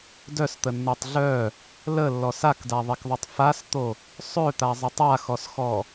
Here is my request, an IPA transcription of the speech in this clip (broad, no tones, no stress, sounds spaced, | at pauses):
d œ s t̪ ə nː o tˤ ɮ œ | l ə lː ɔ s a k d a ðˤ e k ðˤ ø tˤ f a s t̪ o | sˤ ø t̪ a zˤ e tˤ a x ɔ s x ɔ